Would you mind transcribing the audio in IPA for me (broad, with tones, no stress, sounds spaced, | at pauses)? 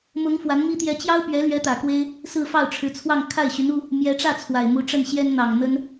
m ʊ˧˥ ŋ f w a˧˥ n m i˥ t̪ j ɛ˧˥ t͡ɕ j ɑ˥ ʊ̯ p ɥ ɛ˧˥ l ɥ ɛ˧˥ t̪ ä˨˩ k w e˥ ɪ̯ | s ɹ̩˥˧ f ɑ˥˩ ʊ̯ ʈ͡ʂʰ ɻ̩˧˥ t͡sʰ w ɑ˥˧ ŋ kʰ a˥˩ ɪ̯ ɕ y˧˥ n u˥ | m j ɛ˧˥ ʈ͡ʂ ä˥˩ t͡sʰ w a˨˩ ɪ̯ m u˧˥ ʈ͡ʂ ə˥˩ n ɕ j ɛ˥ n n̪ ɑ˨˩ ŋ n̪ ə˥ n